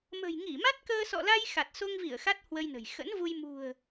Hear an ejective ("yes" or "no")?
no